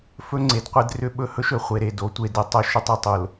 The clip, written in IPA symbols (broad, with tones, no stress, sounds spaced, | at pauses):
f ɵ˦ ŋ͡ǀ e˨ d qʷ e˦ d r ʏ˦ ɓ ɵ˦ h ɵ˦ ʃ ɵ˨ χʷ e˨ ɾ e˨ d o˨˦ tʷ e˨ d ɘ˨ tˤ ɵ˦ ʃ ʏ˦ tˤ e˦˨ tˤ o˨ l